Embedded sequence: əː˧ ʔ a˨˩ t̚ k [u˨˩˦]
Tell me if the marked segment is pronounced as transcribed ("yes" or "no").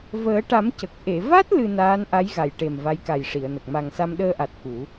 yes